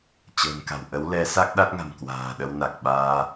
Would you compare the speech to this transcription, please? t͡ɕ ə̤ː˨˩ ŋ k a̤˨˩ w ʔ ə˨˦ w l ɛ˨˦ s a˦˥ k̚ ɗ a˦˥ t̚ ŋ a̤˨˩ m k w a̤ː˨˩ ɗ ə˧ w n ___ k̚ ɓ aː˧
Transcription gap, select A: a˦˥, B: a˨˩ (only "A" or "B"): B